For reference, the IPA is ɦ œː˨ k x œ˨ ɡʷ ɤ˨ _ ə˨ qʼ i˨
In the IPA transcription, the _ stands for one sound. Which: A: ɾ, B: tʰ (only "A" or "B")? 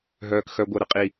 A